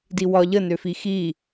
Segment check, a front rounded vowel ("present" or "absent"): present